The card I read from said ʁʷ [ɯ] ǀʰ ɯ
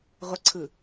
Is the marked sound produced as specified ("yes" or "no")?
no